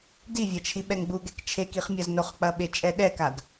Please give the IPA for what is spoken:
d i vʲ ɐ t͡ʃʰ i ɓ ɛ ŋ ɡ͡b u ɡ ɛ k t͡ʃʰ e k i χ mʲ ɐ z n o χ k͡p ɐ ɓ e t͡ʃʼ ɛ ɗ ɛ k a d

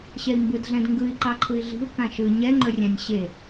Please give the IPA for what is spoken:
ɕ ɛ i̯ m b ɯ d ɮ ɛ̃ d ŋ ɡ ɯ i̯ ǃ ɑ ǃʰ ɯ i̯ ɮ i̤ u̯ k ã ʃ ɯ ɲ ɛ ŋ͡ǃ ɵ rʲ ã nʲ ɕ e

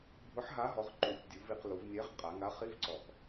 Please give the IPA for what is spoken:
bʱ ʊ˨˥ ħ ɦ a˨˥ ɦ ɔ˩˧ ʁ ǃ u˩˧ tʲ dʲ u˩˧ v i˩˧ q l u˩˧ v nʲ ɛ˨˥ ʁ qʼ a˩˧ ŋ a˨˥ χ i˧˥˧ v ǀ ɔ˨˩ k

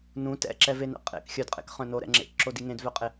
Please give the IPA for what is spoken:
n ũ t ɛ̰ ǁ ɛ v e n ɛ̰ qʼ ḛ k xʲ œ d qʼ ḛ k χ œ̃ n o ɾ ɛ̰ ŋ͡ǁ ḛ k ǁ o d i ŋ ẽ d v œ qʼ e

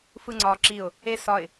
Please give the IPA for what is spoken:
f ɯ ŋ͡ǀ ɒ ǁ i ʊ̯ | e s ɒ ɪ̯

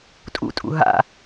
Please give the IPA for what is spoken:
tʼ ṵ tʼ ṵ ɦ a̰

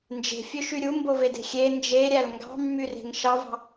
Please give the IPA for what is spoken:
n d͡ʒ e̤ fʲ ø ʃ y ɾʲ u m b o v e d e̤ xʲ e n d͡ʒ e ɾʲ æ l ŋ ɡ ɑ̤ mː y r e̤ ŋ ʃ ɑ v ɑ̤

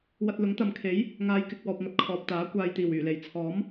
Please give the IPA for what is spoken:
w ɐ˧ t̚ l ʊ˨˥ ŋ t̪ ɐ˨ m kʰ e˨˥ j | ŋ aː˨˧ j k ɪ˨ k̚ w ɔː˨ p̚ ŋ ɐ˨ t̚ kʰ ɔː˨ p̚ t̪ aː˨˥ kʷ aː˨ j t̪ iː˨˩ w yː˨˩ l e˨˩ j t͡sʰ ɔː˨˥ m

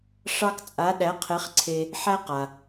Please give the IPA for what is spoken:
ʂ ɑ˥ k t͡sʼ a˧˥ ɗ æ˧˥ qʰ e˧˥ χ ǀʰ e˧ | ħ æ˥ q a˩

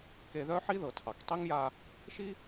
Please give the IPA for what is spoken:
k e˧ ð œ˥ ħ i˥ ð ɤ˩ tʰ ɑ˩ k tˤ i˥ ŋ j a˧ | ʃ i˥

